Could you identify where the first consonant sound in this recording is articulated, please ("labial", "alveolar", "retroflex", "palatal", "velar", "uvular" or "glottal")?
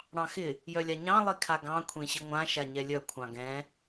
retroflex